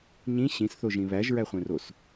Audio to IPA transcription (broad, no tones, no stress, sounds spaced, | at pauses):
ɲ ĩ ɕ ĩ s θ o ʒ ĩ β æ ʒ ɹ æ χʷ ẽ r o s